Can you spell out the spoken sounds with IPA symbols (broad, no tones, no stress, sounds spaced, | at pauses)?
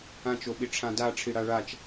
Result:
ã t͡ʃ o ɓ i ʈ͡ʂʰ ã d a ʈ͡ʂʰ i ɽ a ɭ a t͡ʃ